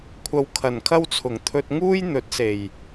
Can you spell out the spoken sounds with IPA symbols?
kʷʰɐ˨wkʰɐ˨˩nkʰɐ˧wt͡sʰʊ˨˩ŋ t̪ʰɵ˧t̚ ŋuː˥j n̪ɵ˨˥t̚ se˨˩j

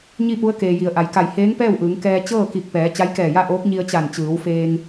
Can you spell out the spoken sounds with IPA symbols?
ɲi˥˨pu˧˥ə̯keː˩ji˩˧ə̯ ʔa˩˧jka˧˩j heː˧˥ŋpɛː˥˨wʔɯː˩˧ŋ kɛː˧ t͡ɕɤː˥˨ki˧˩k̚pɛː˩˧ t͡ɕa˧˥jkɛː˧˩ja˥˨ʔoː˧˥k̚ ɲi˧ə̯ t͡ɕa˧˩nt͡ɕɯː˩˧wfeː˧ŋ

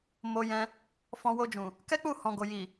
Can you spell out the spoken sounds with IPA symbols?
mo˧jɛ̃˧ | fɔ̃˧wo˧d͡ʒũ˨ | kɛ˦k͡pu˦˨ hɔ̃˨ɡo˨ji˨

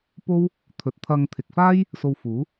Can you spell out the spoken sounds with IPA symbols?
po˥w | t̪ʰɵ˨t̚t̪ʰɐ˧ŋt̪ʰɪ˨k̚ faː˥j | so˧wfuː˨˥

